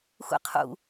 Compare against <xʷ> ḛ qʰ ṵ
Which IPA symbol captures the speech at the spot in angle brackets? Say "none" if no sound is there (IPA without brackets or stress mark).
xʷ